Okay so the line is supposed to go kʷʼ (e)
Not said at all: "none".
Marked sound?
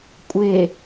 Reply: e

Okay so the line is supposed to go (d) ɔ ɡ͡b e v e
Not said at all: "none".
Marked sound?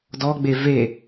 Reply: d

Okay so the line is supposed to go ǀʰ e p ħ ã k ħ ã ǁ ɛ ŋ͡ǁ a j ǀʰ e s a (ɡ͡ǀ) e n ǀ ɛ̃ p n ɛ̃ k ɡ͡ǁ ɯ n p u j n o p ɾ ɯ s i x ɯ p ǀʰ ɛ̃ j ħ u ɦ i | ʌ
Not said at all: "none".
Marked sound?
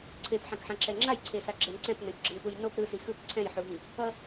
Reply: ɡ͡ǁ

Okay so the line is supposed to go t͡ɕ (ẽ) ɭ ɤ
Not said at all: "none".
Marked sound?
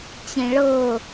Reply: ẽ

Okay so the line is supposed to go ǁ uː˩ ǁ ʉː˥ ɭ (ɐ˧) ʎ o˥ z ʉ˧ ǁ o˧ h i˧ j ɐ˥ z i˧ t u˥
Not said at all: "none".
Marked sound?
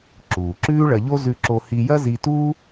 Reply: ɐ˧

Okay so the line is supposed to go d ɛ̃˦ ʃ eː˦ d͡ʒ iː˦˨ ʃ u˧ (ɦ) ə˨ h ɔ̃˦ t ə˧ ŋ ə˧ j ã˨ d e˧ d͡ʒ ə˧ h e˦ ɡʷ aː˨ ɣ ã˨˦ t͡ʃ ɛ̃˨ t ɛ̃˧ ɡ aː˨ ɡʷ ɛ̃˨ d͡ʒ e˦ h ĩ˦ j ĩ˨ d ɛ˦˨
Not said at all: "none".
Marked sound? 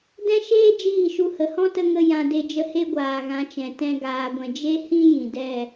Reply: h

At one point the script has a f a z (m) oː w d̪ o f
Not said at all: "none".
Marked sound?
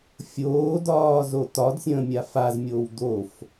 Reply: mʲ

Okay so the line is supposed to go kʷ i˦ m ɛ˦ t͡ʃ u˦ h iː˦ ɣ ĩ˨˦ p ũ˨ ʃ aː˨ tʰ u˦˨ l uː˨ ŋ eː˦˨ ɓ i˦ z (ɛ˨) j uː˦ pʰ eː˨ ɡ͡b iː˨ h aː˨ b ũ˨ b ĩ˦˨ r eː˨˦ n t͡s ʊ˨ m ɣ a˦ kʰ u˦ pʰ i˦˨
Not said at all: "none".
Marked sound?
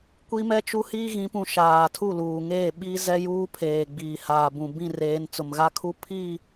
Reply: ɛ˦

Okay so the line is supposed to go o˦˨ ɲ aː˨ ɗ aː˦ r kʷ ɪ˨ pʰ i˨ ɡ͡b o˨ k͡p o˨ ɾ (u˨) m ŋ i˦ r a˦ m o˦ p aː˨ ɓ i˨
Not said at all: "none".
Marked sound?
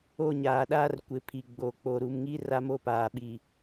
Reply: u˨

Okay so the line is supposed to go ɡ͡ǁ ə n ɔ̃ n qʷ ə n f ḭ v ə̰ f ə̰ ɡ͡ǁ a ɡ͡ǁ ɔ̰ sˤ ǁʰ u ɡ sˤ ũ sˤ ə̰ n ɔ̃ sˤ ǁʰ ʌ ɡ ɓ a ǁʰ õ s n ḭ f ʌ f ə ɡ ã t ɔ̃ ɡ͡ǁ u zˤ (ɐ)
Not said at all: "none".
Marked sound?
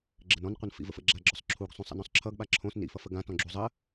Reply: ə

